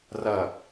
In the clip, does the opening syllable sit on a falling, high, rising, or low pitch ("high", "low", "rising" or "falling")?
low